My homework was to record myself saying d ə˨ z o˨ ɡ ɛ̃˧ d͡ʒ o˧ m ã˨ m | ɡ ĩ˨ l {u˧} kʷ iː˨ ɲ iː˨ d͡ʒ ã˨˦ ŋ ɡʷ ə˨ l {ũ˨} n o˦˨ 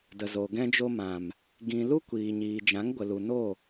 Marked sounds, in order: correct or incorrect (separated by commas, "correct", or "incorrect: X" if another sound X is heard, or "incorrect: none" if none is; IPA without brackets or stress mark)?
incorrect: u˦, incorrect: u˨